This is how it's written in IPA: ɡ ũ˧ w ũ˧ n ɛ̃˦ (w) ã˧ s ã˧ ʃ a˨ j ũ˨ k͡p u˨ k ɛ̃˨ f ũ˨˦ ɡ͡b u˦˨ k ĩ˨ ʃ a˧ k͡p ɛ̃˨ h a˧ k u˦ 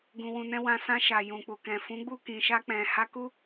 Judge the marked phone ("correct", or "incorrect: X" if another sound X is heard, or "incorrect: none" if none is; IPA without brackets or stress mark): correct